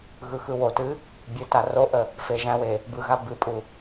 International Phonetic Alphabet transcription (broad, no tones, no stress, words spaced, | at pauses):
ɣɯxɯwotɨ | bʲɯta roʔə | feʒæ̃we | bɯɣa bɨpʼu